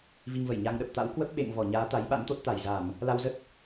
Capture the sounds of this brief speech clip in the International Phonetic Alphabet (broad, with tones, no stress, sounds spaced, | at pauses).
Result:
v i˧ ŋ v ə˧˩ j ɲ a˧ ŋ ɗ ə˨˩ p̚ t̪ a̰˧˥ w k w ə˦˥ p̚ ɓ ḛ˧˨ ŋ v ɔ˧˩ ɲ aː˨˦ t̪ a˨˦ j ɓ a̰˧˥ n t̪ o˦˥ t̚ t̪ a˧˩ j z a˧˩˨ m | l a˧ w z ə˦˥ t̚